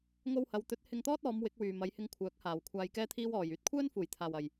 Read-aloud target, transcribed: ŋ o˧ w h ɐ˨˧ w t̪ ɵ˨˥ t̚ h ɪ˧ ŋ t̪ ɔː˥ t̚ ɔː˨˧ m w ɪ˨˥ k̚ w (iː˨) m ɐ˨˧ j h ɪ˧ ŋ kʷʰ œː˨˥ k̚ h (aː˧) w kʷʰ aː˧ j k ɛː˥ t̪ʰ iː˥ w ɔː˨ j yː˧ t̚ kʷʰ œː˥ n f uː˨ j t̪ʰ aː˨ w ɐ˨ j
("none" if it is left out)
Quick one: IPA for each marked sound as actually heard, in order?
yː˨, aː˨

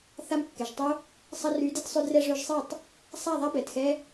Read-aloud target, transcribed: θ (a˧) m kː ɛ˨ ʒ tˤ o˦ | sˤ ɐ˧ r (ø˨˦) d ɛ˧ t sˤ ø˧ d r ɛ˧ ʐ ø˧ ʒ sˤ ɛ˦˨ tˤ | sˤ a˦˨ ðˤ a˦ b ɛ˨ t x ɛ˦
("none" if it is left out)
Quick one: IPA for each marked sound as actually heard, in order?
a˧, y˨˦

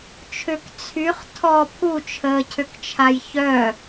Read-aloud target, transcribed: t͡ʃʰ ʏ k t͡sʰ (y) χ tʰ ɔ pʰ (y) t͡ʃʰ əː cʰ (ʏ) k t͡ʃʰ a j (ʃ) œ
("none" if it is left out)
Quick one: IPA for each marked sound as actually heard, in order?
y, u, ʏ, ç

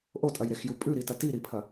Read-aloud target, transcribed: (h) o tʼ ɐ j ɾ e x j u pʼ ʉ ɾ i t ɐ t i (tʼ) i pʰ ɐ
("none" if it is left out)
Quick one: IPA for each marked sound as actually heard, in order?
ʔ, ɾ

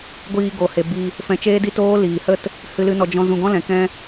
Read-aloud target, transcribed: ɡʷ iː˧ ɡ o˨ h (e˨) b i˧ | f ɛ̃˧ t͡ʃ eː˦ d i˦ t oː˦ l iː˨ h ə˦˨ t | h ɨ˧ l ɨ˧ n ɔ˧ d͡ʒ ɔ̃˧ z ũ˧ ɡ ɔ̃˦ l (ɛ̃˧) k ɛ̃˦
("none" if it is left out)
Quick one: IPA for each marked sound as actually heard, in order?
e˨, ɛ̃˨˦

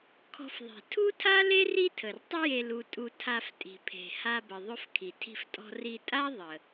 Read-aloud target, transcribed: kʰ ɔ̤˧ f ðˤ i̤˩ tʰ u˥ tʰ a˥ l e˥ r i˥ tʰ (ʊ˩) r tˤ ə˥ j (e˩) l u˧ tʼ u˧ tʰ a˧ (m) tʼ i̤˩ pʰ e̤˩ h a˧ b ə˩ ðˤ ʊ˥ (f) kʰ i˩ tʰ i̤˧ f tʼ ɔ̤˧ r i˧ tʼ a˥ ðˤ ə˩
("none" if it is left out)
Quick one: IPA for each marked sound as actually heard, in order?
ə˩, e˧, f, f

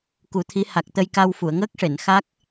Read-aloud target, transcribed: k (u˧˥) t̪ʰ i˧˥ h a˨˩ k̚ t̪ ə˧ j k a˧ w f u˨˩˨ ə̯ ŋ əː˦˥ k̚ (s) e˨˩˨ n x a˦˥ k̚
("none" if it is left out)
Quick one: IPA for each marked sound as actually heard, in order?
u˨˩˦, ʂ

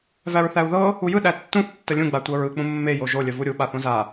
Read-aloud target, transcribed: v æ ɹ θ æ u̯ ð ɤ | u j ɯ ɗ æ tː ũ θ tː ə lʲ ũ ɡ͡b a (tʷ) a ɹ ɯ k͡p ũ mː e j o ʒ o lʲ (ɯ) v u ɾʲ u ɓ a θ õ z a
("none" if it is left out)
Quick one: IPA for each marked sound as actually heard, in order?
tʷ, ə

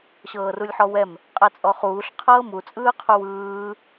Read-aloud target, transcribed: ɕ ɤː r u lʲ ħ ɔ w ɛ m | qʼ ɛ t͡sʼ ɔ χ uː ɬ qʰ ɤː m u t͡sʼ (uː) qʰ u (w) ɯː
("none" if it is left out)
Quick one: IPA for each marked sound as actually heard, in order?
ɯː, w

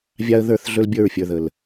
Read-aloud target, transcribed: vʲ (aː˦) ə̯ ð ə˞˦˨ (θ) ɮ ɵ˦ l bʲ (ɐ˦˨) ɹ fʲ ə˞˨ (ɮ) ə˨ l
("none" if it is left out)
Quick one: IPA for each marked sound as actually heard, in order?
a˦, θ, ə˞˦˨, ð

